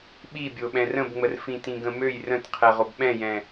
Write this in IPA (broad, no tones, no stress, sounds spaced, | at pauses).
ɓ i bʲ o ɓ ɛ̃ r ə̃ b ŋ͡m ə r f ĩ t ĩ ɡ ə̃ m ø j r ə̃ t qʰ ɛ ʁ o b ɓ ɛ̃ j ɛ̃